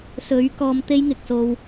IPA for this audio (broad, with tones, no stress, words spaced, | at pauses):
sɵ˨˥ɥ kɔː˧mt̪e˥jŋɪ˨k̚so˧w